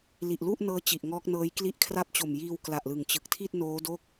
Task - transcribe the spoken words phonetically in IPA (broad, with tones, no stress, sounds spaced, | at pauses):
l i˨˩ ʔ l u˥˩ ʔ n ɤː˦˥ t͡ɕ i˨˩ ʔ ŋ ɔː˦˥ k̚ n ɤː˦˥ j k l i˥˩ ʔ kʰ r a˦˥ p̚ t͡ɕ o˨˩ m j iː˧ w k l a˨˩ ʔ l ɯ˨˩ ŋ t͡ɕ ɯ˨˩ k̚ tʰ i˥˩ t̚ n oː˦˥ d o˥˩ k̚